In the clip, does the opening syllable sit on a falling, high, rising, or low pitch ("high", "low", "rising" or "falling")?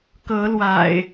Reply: rising